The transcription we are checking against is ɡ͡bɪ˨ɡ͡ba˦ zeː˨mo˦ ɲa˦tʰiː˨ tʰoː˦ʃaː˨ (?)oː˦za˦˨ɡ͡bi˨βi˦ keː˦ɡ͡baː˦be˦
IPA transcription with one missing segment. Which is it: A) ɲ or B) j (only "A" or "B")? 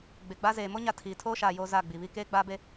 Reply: B